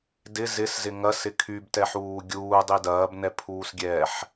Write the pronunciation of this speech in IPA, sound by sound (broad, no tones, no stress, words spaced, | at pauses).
dɪ zɪszɪ ŋɐsɪ kʰybtɛħuː ɡʲuːdˤi dɐːbnɛpʰuːsɡʲɛːħ